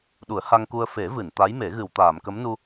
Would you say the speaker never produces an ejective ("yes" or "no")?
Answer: yes